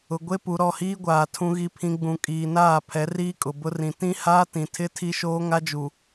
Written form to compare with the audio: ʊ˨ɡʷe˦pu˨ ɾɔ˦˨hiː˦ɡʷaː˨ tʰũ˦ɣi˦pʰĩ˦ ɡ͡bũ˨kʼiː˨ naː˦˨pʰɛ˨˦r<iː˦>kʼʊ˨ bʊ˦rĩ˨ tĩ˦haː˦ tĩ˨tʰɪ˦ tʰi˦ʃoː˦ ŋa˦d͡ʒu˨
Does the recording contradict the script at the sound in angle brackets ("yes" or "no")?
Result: no